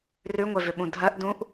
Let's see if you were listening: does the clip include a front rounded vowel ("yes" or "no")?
yes